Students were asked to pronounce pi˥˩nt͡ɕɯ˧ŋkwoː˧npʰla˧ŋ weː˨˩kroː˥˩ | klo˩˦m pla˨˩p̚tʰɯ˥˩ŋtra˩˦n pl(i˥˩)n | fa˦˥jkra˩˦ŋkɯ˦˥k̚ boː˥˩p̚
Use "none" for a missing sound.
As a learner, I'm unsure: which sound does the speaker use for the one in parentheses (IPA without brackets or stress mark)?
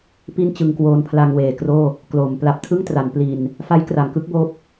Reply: i˧